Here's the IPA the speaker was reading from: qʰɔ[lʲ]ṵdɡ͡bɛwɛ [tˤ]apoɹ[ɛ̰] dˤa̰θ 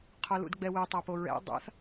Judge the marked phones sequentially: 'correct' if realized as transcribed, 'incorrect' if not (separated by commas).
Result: incorrect, correct, correct